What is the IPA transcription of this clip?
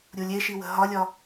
ɾʲ u lʲ e ʃ i w ə̤ ɦ ɒ lʲ ɒ

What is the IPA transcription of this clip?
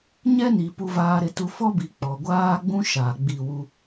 ɲ ɛ˦ n i˨ p u˨ v aː˨ ɾ ɪ˨ t u˨ f ɔ˦ b i˨ k͡p ɔ˨ ɡʷ aː˦ ɡ͡b ũ˦ ʃ aː˨ ɡ͡b i˦˨ w u˦

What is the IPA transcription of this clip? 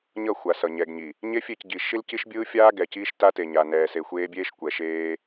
ɲ ʌ˦˨ xʷ a˨ s ʌ˨ ɲ ɛ˨ ɡ ɲ i˨ | ɲ e˦ fʲ e˦˨ c ɟ i˨ ʃ i˦ l c i˦ ʃ bʲ ɯː˦ fʲ aː˦ ɡ ɛ˨ c iː˦ ʃ t a˦ t e˨ ɲ a˨ n ɛː˨ s e˨ xʷ eː˦ bʲ eː˦ ʃ kʷ ɛ˨ ʃ eː˦

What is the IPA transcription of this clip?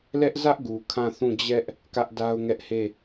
l ɛ˦ ʔ z ä˦ ʔ ɡ u˨ kʰ ã˦˨ θ ũ˦˨ d͡ʑ ɛ˦ ʔ | k ä˦ ʔ d a˦ ʊ̯ ŋ ɛ˦ ʔ h e˦˨

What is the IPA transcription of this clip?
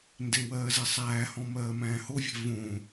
n d e w ɜː z e sˤ æː h ɔ̃ m ɜː m æ̃ː h o vʲ ɛ̤ v õ

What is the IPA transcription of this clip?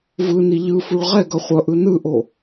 v ɯ n i ʎ ɯ f u ɭ ʁ ɛ ɡ ʌ χʷ ʌ ʔ ɯ n ɯ ʔ o

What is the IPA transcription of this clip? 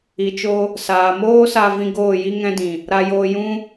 i˨ t͡ʃ o˧ | s aː˨ m oː˦ s a˧ v ĩ˧ ɡ oː˦˨ j i˦ ŋ ɛ̃˦ d ĩ˨ | ɾ a˧ j oː˧ j ũ˦

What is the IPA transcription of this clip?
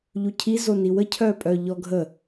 ʎ u cʰ i z o n i w ə cʰ œː pʼ œ ʎ ɔ ɡʱ ə

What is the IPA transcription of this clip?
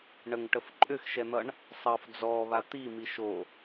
ɳ ə ŋ ʈ ə f ǃʼ ʏ x ʃ ɛ n̪ ʌ ɳ | sˤ ʌ f d͡z ɔ β a t̪ i m i ʃ o

